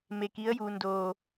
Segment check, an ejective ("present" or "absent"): absent